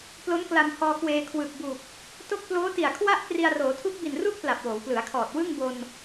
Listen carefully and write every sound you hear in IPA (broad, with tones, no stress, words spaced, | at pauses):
plo˦˥nkla˧mhɔː˧kweː˧ kʰwɯ˨˩k̚bu˨˩k̚ | to˥˩k̚ ploː˦˥ti˨˩a̯kʰwa˥˩ʔkri˧a̯ roː˩˦tʰu˦˥k̚bi˨˩nru˥˩k̚ pla˨˩p̚woː˩˦wplɯ˩˦a̯kʰɔː˨˩t̚ wɯ˥˩ŋbo˧n